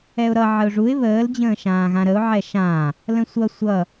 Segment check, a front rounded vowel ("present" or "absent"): absent